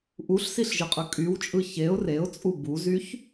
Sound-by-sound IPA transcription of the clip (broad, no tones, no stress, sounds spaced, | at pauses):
ʔ u ɬ s i ɬ ʒ ɯ qʼ ɯ kʼ y w t͡ʃʼ ɯ ç e ʊ̯ r e ʊ̯ t͡sʼ u b u z y ç